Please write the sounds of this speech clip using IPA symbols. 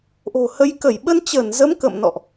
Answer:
ʔ o̤˨˩ h ə˨˦ j k ə˧˩ j ɓ ə˧ n t͡ɕ əː˧˩ n z ə˨˦ m k ə̰˧˨ m n ɔ̰˧˨ ʔ

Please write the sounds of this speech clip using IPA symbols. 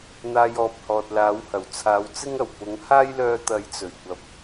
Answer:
n̪ aː˧ j ɔː˨ p̚ h ɔː˨ t̚ l aː˨˥ w h ɐ˨˩ w t͡sʰ aː˨˧ w t͡s ɪ˥ ŋ ɐ˨˩ w p ʊ˨˥ ŋ h aː˥ j l œː˧ t̪ ɐ˨˥ j t͡s ɵ˨˩ ɥ kʷ ɐ˨˥ p̚

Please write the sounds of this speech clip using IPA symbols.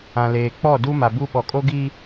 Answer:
ã˨ l eː˨ k͡p ɔ˦˨ d u˦ m a˨ b u˦ ɓ ɔ˨ kʼ o˦ ɡ i˦

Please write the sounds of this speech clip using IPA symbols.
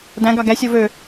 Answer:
d æ̃ ɡ ɑ ɡ æ sʲ o v ø

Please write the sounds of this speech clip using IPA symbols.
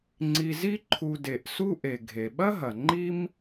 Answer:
ŋ͡ǀ i˨ z i˥ ǃʰ u˨ d e˩ ʔ s u˦ ʔ e˩ ɡʱ e˩ ɓ ɐ˥ ɦ ɐ˩ ŋ͡ǃ i˦ m

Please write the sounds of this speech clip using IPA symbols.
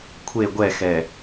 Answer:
kʷʰ e ɡʷ ɛ x ɛ

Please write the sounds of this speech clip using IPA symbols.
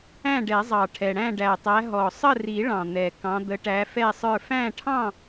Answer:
æ̃˥˨ ɖ ɛ˨˩˦ zˤ ɑ˨˩ ʈʰ ɛ˨˩ ɽ æ̃˥˨ ɖ æ˨˩ tˤ æ˨˦ ɦ ɔ˨˩ sˤ ə˥˨ r i˨˩˦ ɭ ɑ̃˨˩ n̪ ɛ˨˩ k ɑ̃˨˦ d̪ ə˨˦ ʈ æ˨˦ f ɛ˥˨ sˤ ə˞˥˨ f æ̃˥˨ ʈʰ ɑ̃˥˨

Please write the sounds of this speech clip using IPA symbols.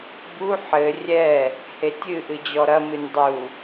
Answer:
b u ħ ɘ rʲ ɛ | h e tʲ ɨ ʔ ɨ d͡ʑ ɔ ɾ ɐ m ɨ nʲ dˤ u

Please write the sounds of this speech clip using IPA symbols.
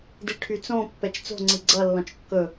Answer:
d i ʈʰ y t͡s õ pː ɛ t͡ʃ t͡s o̤ ŋ͡ǀ i ɡ͡ǀ ʌ lː ɔ̃ t͡ʃ kː ɵ

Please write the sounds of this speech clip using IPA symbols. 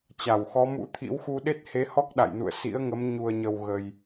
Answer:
t͡ɕ a˧˩ w x ɔ˨˦ m ṵ˧˥ t̪ʰ ḭ˧˥ w x u˧ ɗ e˦˥ t̚ h e˨˦ h ɔ˦˥ k̚ ɗ a̰˧˨ j n ṵ˧˨ ə̯ s ḭ˧˥ ə̯ ŋ ə˨˦ m ɲ u˨˩ ə̯ ɲ ə˨˩ w ɣ ə˨˩ j

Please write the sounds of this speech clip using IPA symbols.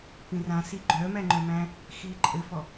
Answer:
p ĩ r ã s i ɡ͡ǃ œ m æ ŋ͡ǃ œ m æ̃ | x iː ǃʼ ɘ f ɔ

